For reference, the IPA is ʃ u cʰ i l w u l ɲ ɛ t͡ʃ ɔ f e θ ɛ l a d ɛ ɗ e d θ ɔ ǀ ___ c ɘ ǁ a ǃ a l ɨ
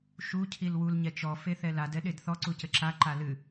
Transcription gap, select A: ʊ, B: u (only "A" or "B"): B